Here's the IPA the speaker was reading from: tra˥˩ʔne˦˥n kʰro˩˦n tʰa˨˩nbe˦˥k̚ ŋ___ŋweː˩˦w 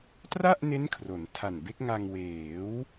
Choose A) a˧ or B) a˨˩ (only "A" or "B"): A